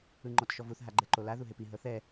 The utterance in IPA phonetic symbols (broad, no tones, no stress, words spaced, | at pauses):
ɯŋ͡ǃɔtʃɔvuθ ɦaɡ͡ǃɛǃola ðuɦepi ɦɤθɛ